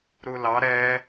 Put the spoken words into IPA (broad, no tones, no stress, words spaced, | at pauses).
ɾulɑ ɾɛ